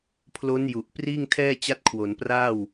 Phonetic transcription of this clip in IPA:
pʰlo˦˥n ju˨˩ʔ priː˥˩ŋtʰɛː˥˩t͡ɕa˦˥t̚kʰwo˩˦n praː˥˩w

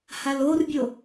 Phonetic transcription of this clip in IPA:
halorbʲo

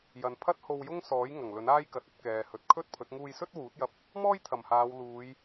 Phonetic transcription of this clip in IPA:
jɐ˨npʰɐ˥t̚ ho˧wjʊ˥ŋsɔː˨˥j ŋɐ˨˩ŋlɵ˨˥n aː˥jkɐ˨t̚ ɐ˧t̚ kɛː˨hɵ˨˥t̚kʰɵ˥t̚pʰɵ˨˥t̚ ŋuː˧jsɵ˥t̚ wuː˨˥t̚jɐ˧p̚ | mɔː˥jt̪ʰɐ˨˩mhaː˨˧w luː˨˧j

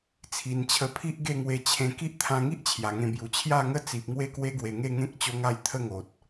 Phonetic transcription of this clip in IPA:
t͡sʰi˨˩nt͡ɕʰə˧pʰi˦ʔ ɡe˥˧ŋwe˧t͡ɕʰẽ˧ ki˦ʔt̪ʰã˧ŋi˦ʔ t͡ɕʰja˨˩ŋẽ˧bju˨˩ t͡ɕʰja˥˧ŋə˥˧t͡si˨p̚ŋwe˦ kwe˦ɡwe˨˩ŋe˥˧ ŋẽ˦k̚ t͡ɕo˦ŋa˥˧j t̪ʰə˥˧ŋo˨t̚

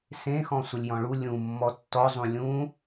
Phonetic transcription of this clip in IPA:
sẽxɔ̃ sʷəlʲjɔ̃ɭu lʲũ mːɔtːɔzˤũ lʲũ

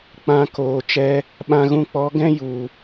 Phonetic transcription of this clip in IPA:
k͡pã˧koː˨ t͡ʃɛ˧ | ɓã˧ɣũ˧k͡pɔ˨˦ ɡɛ̃˦ju˨

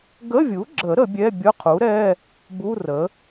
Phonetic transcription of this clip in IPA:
ɡə˧˥˧vʲu˩˥ɡ͡ǁə˨˩˦ ɾə˨˩˦bʲɛ˧˥˧ bʲʊ˧˥˧qʰu˩˥ɾɛ˧˥˧ | bu˧˥˧rə˩˥

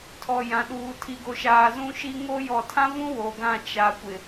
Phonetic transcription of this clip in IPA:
tʰɔ˨jã˨ɗuː˨ tʰi˨ɡo˨ʃaː˨ zũ˦ʃi˦ ŋo˦ jɔ˨tʰã˦vũ˦ wo˨ɡã˦˨ t͡ʃa˨kʷɪ˨

